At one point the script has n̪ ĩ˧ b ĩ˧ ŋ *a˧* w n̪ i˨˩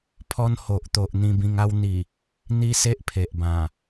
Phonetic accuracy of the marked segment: incorrect: a˦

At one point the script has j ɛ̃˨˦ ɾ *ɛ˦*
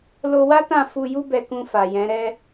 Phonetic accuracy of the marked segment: correct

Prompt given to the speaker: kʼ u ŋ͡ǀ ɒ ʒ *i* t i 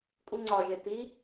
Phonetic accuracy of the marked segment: incorrect: e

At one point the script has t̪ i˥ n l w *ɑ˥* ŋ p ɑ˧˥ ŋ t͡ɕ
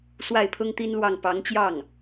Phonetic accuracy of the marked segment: incorrect: ɑ˥˩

